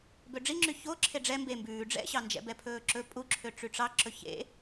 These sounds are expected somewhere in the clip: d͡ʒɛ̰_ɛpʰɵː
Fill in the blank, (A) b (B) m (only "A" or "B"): A